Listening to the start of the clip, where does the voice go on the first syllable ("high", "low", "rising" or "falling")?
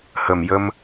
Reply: low